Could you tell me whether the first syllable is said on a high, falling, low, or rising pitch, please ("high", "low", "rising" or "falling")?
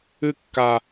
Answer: high